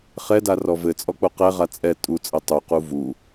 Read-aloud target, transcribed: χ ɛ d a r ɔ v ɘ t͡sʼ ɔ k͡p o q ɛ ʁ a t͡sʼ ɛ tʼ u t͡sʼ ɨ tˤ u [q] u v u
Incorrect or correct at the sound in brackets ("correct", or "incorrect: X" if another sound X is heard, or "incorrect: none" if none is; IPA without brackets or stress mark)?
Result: correct